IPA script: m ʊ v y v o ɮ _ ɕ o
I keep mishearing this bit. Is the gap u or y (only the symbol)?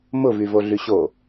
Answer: y